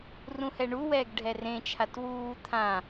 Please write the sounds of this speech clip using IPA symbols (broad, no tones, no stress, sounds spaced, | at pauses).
r ũ h ɛ ɳ u w ɛː ɡ ɖʱ ɛ r ẽ t͡ʃʰ a t w uː t̪ʰ ã